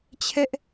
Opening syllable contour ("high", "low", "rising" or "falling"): high